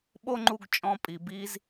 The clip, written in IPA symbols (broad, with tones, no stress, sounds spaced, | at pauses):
ɓ o˥ ŋ͡ǃ u˧ ɡ t͡ʃʼ ɔ̃˧ pʼ i˩ b i˧ z